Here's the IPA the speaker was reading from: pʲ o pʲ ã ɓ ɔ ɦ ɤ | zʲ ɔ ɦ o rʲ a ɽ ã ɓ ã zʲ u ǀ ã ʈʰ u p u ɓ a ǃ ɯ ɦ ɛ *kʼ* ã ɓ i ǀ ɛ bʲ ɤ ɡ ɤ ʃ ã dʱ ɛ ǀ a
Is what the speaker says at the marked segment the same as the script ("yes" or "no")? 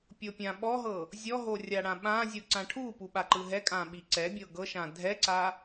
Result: yes